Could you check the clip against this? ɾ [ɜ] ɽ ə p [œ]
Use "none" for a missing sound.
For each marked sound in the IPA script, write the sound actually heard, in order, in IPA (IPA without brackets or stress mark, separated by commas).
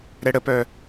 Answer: ɛ, œ